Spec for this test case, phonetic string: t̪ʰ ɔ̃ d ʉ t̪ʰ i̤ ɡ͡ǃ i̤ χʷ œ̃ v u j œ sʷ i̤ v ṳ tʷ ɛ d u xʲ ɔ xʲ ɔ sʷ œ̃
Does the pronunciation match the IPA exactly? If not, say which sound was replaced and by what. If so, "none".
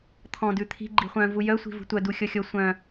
ɛ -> œ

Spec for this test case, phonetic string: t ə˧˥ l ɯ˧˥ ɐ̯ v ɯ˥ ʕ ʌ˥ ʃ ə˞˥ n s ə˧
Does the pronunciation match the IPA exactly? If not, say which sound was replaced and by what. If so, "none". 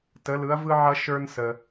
none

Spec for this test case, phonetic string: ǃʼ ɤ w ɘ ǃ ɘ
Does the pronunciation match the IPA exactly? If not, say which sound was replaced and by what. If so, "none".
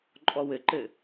ɤ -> ɔ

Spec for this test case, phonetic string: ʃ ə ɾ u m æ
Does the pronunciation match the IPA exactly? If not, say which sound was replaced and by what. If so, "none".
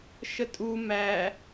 ɾ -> tʼ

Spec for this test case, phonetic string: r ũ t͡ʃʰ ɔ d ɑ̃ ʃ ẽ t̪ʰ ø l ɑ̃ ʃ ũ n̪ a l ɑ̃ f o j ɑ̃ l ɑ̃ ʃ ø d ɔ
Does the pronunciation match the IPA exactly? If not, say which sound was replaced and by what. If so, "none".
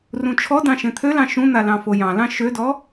none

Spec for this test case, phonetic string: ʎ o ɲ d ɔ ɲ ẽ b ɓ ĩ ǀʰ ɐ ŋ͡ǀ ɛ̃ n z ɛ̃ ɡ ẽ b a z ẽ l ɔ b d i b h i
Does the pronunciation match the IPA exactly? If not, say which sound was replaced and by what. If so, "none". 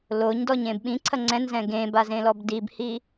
ʎ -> l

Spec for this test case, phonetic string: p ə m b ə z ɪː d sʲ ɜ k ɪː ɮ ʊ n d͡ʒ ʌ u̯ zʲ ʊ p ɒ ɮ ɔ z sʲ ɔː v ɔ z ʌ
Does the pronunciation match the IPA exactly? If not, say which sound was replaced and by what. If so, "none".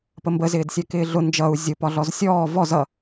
none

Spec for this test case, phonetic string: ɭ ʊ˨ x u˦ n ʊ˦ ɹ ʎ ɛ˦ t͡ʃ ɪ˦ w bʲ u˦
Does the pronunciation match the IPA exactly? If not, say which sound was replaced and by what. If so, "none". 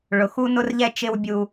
ɹ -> r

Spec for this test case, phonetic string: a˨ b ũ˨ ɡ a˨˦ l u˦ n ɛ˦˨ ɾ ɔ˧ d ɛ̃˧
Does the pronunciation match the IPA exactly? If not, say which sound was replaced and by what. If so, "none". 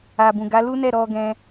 d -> ɡ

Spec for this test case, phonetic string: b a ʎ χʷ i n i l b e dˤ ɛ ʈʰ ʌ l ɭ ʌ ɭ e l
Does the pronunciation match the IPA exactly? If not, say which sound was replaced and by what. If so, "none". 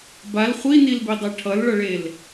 ʎ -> l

